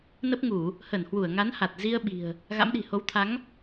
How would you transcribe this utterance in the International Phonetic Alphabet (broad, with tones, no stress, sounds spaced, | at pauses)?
n ə˦˥ p̚ ŋ u˧˩˨ | h ə˧˩ n h w u˧˩ ə̯ ŋ a˨˦ n h a˨˩ t̚ z i˧ ə̯ ɓ i̤˨˩ ə̯ | ɣ a̰˧˥ m ɗ i̤˨˩ h o˨˦ w t̪ʰ a˨˦ ŋ